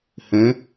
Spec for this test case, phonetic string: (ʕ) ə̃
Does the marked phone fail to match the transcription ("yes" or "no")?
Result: yes